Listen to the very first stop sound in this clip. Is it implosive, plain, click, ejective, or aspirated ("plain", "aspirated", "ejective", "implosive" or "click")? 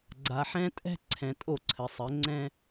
click